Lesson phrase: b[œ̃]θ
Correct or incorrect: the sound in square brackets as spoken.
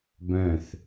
correct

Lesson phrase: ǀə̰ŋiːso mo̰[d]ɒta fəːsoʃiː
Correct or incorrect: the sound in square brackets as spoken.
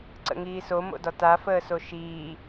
correct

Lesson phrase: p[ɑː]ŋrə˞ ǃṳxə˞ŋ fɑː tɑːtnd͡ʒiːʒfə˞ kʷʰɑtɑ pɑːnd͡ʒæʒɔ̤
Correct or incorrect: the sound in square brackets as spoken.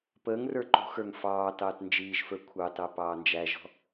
incorrect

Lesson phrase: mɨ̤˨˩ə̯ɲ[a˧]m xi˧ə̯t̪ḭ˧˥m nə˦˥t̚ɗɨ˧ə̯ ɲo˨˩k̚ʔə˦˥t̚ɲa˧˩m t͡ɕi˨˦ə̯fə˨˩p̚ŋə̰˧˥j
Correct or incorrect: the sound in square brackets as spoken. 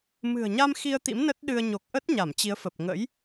correct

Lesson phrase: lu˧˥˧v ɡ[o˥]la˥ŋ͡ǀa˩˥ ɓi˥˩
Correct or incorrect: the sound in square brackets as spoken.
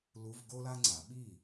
correct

